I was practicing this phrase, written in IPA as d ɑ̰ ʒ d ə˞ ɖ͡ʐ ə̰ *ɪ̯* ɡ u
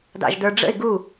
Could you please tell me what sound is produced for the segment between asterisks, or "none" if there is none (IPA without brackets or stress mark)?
ɪ̯